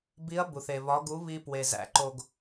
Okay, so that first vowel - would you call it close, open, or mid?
close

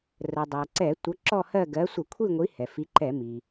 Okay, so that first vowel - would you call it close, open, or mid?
mid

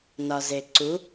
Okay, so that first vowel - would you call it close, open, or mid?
open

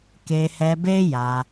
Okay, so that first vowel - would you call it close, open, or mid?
mid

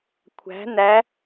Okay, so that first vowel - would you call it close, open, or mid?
open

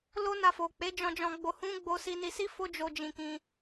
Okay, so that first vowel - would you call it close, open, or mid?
mid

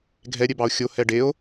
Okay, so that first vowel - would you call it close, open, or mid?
mid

